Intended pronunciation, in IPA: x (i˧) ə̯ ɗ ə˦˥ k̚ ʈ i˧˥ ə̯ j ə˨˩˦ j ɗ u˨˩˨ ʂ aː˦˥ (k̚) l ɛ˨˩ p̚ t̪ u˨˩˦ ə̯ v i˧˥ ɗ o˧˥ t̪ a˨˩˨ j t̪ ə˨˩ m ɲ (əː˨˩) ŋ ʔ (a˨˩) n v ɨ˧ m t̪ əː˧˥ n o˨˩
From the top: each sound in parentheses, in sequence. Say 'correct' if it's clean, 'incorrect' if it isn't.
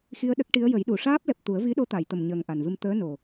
correct, incorrect: p̚, correct, correct

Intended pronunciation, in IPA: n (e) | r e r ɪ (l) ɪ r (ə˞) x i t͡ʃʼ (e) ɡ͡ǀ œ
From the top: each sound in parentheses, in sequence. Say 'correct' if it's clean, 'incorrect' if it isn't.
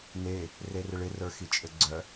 correct, incorrect: ɭ, correct, incorrect: ɘ

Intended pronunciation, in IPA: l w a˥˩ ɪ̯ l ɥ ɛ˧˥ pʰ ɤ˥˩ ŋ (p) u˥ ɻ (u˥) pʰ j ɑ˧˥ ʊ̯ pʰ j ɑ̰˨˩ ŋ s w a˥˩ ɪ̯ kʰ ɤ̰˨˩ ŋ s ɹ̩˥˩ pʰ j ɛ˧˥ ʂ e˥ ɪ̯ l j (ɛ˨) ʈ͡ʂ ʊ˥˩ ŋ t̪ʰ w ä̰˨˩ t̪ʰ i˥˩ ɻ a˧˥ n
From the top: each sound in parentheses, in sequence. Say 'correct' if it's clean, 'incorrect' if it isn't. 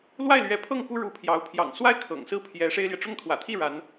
correct, incorrect: u˧˥, correct

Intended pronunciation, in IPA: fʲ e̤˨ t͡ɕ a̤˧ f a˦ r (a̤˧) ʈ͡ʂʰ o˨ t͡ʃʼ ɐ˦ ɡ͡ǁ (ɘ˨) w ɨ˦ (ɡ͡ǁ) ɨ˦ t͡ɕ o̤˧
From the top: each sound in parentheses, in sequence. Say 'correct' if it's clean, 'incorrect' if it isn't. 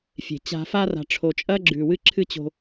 incorrect: a̤˨, incorrect: ʉ˨, incorrect: ǁʰ

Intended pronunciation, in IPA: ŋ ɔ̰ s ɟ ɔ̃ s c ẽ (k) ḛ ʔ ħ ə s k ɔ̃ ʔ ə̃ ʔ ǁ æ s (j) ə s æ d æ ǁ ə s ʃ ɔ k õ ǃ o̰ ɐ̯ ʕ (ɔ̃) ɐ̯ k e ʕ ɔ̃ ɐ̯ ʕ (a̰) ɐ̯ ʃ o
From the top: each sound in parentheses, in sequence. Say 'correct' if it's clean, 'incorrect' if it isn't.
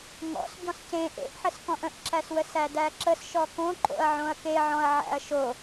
incorrect: ʔ, incorrect: w, incorrect: õ, incorrect: æ̰

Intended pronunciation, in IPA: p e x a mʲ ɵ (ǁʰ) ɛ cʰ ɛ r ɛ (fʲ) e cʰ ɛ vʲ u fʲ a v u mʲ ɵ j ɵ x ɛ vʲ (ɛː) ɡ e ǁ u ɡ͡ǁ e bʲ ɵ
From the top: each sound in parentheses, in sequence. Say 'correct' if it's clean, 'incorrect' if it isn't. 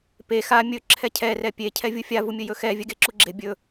correct, incorrect: pʲ, incorrect: ɛ

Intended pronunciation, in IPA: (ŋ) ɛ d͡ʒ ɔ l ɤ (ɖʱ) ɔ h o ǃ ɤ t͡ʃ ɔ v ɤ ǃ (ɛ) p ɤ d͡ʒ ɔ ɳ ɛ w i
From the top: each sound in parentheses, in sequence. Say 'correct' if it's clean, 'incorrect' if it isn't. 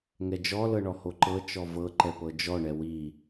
correct, incorrect: ɳ, correct

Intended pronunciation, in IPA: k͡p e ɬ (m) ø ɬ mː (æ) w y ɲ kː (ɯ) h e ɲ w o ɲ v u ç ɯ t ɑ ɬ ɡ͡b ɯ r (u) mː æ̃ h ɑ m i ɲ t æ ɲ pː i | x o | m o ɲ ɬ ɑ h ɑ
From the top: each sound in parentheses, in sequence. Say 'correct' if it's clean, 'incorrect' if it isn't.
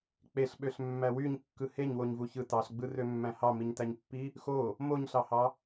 incorrect: ɓ, correct, correct, incorrect: ø

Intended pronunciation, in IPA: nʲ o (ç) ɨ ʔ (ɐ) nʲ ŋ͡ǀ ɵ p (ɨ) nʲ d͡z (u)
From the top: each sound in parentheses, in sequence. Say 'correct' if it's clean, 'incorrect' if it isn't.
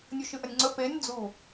incorrect: ʃ, correct, incorrect: e, correct

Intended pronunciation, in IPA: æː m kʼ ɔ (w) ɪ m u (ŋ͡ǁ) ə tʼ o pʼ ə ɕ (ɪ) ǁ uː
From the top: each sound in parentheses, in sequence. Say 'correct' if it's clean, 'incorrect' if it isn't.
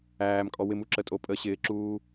correct, incorrect: ǁ, incorrect: ɪː

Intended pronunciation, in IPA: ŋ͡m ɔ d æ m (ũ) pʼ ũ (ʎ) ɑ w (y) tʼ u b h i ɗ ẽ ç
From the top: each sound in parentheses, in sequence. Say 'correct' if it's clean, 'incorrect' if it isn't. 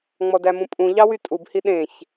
correct, correct, correct

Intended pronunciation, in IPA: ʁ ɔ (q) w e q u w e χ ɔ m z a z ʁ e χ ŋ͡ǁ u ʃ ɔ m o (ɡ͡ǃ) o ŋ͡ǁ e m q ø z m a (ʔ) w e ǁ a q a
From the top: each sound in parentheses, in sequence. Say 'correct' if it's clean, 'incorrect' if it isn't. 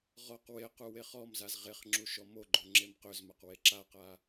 correct, correct, incorrect: q

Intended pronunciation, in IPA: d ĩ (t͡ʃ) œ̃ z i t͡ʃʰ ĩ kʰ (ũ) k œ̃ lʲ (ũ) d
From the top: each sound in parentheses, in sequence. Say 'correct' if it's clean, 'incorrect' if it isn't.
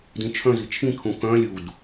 incorrect: t͡ʃʰ, correct, incorrect: u

